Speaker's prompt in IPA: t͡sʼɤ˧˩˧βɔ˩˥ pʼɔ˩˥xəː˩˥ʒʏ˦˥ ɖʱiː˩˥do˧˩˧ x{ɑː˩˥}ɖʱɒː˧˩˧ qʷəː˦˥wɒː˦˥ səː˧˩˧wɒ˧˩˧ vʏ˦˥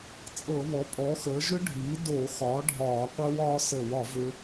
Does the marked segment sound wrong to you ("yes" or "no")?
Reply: yes